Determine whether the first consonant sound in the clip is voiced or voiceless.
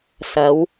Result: voiceless